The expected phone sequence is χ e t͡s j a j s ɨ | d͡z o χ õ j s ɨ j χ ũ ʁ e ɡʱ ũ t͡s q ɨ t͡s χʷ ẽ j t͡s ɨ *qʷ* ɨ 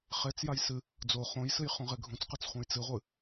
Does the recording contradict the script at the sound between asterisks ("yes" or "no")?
yes